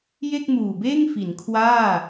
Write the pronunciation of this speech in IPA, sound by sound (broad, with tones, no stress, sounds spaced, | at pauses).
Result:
j e˥˩ k̚ m uː˨˩ b eː˥˩ ŋ f i˩˦ n kʰ w aː˥˩